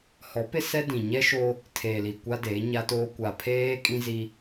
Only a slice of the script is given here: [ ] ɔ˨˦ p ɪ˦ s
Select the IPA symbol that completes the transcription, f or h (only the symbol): h